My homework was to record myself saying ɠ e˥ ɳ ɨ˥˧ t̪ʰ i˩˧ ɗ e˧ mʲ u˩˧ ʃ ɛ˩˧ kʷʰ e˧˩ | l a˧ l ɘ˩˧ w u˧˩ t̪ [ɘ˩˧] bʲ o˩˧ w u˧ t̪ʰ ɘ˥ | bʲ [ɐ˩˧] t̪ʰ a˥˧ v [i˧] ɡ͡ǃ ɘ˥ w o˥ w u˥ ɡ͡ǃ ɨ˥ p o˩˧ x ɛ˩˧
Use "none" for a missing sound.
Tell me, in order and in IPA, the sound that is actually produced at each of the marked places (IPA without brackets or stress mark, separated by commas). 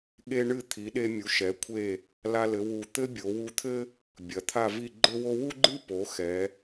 ɘ˥, ɐ˩˧, i˥˧